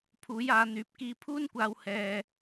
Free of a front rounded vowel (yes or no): no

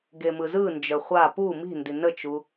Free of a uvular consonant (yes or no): no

